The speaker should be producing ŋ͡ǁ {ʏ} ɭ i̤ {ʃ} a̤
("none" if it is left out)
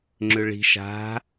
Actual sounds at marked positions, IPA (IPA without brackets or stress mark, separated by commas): ʏ, ʃ